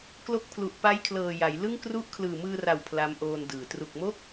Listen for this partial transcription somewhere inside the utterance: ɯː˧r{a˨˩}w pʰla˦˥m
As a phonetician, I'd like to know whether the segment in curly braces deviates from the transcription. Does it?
no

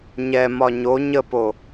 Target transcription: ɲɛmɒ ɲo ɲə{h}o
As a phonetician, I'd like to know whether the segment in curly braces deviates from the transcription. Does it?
yes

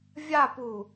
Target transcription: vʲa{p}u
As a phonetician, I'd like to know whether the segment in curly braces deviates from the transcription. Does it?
no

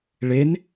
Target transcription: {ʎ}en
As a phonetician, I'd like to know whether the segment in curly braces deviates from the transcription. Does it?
yes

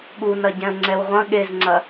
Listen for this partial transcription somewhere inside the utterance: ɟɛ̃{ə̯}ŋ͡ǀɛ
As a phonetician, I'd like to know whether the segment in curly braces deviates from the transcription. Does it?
no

